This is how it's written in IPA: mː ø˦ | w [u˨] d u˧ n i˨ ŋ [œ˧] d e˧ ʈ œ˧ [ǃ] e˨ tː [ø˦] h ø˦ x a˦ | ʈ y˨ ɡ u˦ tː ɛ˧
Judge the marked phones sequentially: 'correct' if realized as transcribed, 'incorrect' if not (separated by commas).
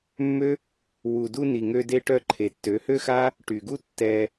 correct, incorrect, incorrect, incorrect